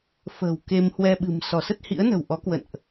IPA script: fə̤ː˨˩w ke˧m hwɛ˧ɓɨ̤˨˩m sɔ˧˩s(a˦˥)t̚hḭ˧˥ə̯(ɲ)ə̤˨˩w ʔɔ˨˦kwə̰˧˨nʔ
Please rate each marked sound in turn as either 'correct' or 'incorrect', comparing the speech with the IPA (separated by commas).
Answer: incorrect, incorrect